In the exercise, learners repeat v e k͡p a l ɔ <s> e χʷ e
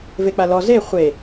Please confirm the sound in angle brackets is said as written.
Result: no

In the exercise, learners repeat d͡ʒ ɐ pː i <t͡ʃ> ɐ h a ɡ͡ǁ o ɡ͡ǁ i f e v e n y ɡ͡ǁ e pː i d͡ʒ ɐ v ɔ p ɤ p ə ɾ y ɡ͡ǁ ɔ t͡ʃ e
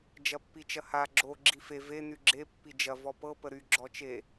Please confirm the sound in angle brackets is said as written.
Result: yes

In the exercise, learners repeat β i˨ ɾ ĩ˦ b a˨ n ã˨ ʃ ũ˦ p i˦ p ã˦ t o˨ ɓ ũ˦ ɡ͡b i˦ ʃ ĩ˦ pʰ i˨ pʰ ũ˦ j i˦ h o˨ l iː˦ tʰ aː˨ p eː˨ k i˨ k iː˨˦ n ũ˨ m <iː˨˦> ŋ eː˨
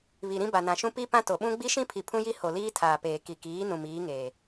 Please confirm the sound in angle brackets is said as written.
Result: yes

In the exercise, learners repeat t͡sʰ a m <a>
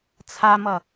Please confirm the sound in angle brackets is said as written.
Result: no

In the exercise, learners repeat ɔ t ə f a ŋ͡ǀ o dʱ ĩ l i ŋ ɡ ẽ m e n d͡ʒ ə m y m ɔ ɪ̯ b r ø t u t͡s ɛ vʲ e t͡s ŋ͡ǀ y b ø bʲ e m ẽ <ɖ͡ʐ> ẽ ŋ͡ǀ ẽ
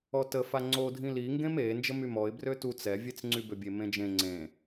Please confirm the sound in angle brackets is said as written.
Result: no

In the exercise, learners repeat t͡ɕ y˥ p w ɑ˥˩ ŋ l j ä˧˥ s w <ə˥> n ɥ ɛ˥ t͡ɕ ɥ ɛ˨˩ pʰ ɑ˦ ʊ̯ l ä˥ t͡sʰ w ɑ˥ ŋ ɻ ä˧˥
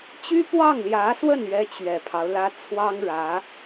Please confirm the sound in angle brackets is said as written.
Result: no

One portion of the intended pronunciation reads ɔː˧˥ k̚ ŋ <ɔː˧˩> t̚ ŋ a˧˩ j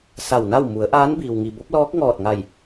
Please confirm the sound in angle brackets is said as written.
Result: yes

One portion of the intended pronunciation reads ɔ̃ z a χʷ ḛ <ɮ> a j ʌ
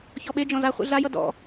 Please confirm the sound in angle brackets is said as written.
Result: yes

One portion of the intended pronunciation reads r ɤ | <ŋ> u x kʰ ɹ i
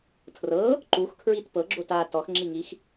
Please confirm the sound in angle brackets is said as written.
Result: no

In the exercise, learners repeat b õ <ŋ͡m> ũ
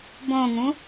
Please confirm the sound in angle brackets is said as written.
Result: no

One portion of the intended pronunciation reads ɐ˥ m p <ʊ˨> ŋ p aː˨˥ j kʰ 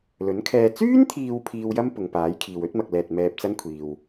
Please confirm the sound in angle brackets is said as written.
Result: yes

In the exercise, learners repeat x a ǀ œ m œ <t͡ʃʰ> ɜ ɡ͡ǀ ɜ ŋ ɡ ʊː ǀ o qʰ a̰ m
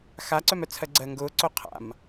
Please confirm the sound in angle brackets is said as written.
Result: no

